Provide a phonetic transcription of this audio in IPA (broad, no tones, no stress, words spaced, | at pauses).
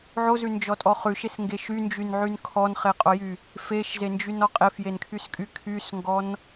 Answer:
ʕozʉnd͡ʒɔtʼɔ χʉʃesŋɡeʃ ynd͡ʒynʕyn kʰɔnχeqʼojy | feʃzend͡ʒynɔ qʼefjenkʰyskʼy kʰysŋɡɔn